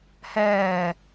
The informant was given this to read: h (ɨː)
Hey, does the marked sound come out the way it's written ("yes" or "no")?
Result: no